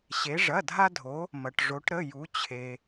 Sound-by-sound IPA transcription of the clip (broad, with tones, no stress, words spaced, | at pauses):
ɕe˩˧ʐɐ˩˧˩dʱa˧dʱo˩˧ | mɐ˩ʈʐo˩˧ʈɾə˩˧˩ ju˩˧t͡ɕʰe˩